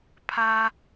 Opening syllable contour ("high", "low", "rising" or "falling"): high